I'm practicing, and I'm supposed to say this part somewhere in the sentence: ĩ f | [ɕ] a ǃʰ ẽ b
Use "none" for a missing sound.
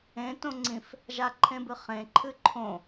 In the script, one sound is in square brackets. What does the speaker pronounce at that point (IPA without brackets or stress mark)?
ʒ